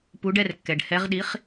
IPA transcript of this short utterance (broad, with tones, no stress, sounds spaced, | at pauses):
p u˨˥ ɖ ɛ˥˧ r kː ɛ˩ ɖ h ɛ˨˥ ʁ ɗ i˨˥ χ